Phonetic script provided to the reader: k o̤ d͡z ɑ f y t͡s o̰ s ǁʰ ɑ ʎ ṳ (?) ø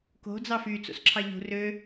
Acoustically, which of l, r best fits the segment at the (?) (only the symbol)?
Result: r